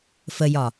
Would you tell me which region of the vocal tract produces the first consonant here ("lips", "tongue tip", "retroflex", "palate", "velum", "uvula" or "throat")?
lips